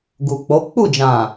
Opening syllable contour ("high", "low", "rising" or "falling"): low